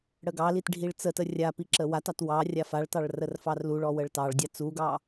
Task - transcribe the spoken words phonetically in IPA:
ɽəɡɑlit ɖʱiɭt͡sətə rʲa piǁəwatɑt wɑ rʲafaɭtɑɭ rərfɑrluɭɔ wəɭtɑɭdʲa t͡suɡɑ

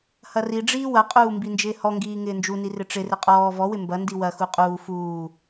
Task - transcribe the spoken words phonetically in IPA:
hɐriɖ͡ʐiː wɐqʼuː mbind͡ʒɪːhɔŋɡiː ŋɪːnd͡ʒuni rɪʈ͡ʂɪrɪ qʼɔː vɔwɪ mbɐndi wɐxu qʼuː fuː

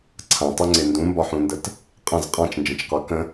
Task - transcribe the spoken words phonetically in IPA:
ǀʰãtˤuŋ͡ǀe ndũmbɒħũndət | qʼə̃z qʼãt͡ʃnd͡ʒə̃t͡ʃqɒ kə̃

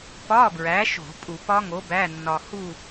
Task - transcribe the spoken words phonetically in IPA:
pɒ˧˥˧bɹæ˨˥ʃo̤˧˩˧ pʼu˧˩˧pɒ˦˥ŋo˨˥ bæ˧˥˧nːɒ˧hu˥˧

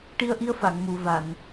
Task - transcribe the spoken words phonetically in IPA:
ʈi˧ə̯ʔi˧ə̯fa˨˩˨ŋ mu˨˩˨va˨˩˨n

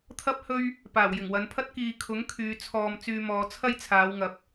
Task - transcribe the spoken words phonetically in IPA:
t̪ʰɐ˥p̚hɵ˥ɥ | paː˨˩wjɪ˨˩ŋwɐ˨˧npʰɐ˥t̚ kiː˨kʰʊ˨˥ŋ kʰyː˨˧ t͡sʰɔː˧m t͡syː˧mɔː˨˧t͡sʰɐ˥j t͡sʰaː˨˧wŋɐ˨˥p̚

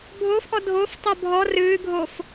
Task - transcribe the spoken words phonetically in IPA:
bʱofʔɔ dʱof tˤobʱɔ rɨːɡʱof

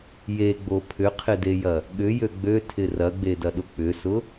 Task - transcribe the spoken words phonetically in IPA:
jeɡ͡bo pʰʏqʰɪdejɐ | ɠʏjø ɡ͡bøtʰɪ rɐɡ͡bedɐɗʊ k͡pʏsʊ

